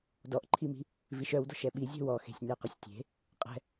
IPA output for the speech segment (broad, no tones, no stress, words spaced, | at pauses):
dɔʔǃʰimi̤ | viʃœwdɔ̤ʃ ɛɓizʲɛ̤ wɔxe̤sʲ neqɪsʲtʲe̤ | qʼɛ̤